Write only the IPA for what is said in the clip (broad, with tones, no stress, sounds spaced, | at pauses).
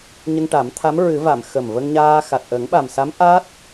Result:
ɲ ə˧ ŋ ʈ a˨˩˦ m t̪ʰ a˧˥ m ɹ ɨ˨˩˦ v a˨˩˨ m x ə˨˩ m v ə˧ ŋ ɲ aː˧ x a˨˩ t̚ ʔ ə˨˩˦ ŋ ɓ a˨˩ m s a˧˥ m ʔ a˦˥ t̚